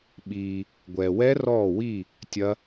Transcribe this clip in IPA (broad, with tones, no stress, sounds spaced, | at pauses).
ɓ iː˨ | ɡʷ ɛː˨ w ɛ˦˥ r ɔː˥˨ w i˥˨ | tʲ ɐ˦˥